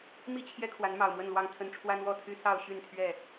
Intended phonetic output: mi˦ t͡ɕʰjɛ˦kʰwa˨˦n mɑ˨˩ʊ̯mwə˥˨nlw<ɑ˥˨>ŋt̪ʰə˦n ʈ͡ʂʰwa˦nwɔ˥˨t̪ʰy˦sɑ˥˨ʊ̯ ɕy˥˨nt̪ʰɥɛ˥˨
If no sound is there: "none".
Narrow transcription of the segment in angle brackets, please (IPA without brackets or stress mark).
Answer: ɑ˥˨